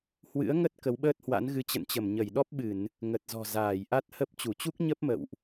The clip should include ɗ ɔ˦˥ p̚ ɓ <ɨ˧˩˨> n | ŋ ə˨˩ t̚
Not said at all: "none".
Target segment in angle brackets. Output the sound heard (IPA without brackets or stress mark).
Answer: ɨ˧˩˨